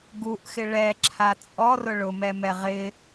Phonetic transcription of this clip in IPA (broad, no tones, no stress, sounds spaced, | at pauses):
ɡ u ʔ x ɪ ɭ ɛ ǁʰ a t͡sʼ ɔ r ʊ ɭ ʊ m ɛ m ɛ ʁ ɪ